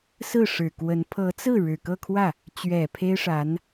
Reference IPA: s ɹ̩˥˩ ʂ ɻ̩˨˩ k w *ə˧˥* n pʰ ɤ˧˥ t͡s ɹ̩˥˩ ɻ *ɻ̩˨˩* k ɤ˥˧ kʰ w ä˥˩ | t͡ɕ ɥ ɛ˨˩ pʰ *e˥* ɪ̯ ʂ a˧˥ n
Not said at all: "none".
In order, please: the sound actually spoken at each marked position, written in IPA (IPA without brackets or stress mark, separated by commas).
ə˧˥, ɻ̩˨˩, e˥